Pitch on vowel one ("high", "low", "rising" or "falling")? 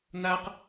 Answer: high